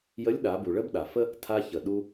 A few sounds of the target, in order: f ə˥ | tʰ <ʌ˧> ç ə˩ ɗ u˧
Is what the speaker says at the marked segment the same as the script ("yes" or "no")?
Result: no